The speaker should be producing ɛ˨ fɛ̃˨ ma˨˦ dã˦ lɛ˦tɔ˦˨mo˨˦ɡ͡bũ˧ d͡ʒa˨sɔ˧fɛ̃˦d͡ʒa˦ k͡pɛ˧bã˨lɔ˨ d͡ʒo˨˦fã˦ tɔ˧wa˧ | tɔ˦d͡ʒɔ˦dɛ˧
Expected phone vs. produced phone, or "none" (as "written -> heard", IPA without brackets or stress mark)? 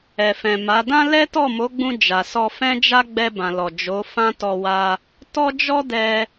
k͡p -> ɡ͡b